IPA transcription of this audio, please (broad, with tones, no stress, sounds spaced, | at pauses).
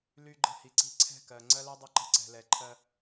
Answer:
l y˧ ɡ͡ǃ ə̤˧ h i˨ ǀ i̤˧ ǀʰ ɛ̤˦˨ k ɜ˨ ŋ͡ǀ ɜ˦ l ɛ˦ dˤ ə˦ ǃ ə̤˧ ǀ ɛ̤˨ l ɛ˨ ǃʰ ɜ˧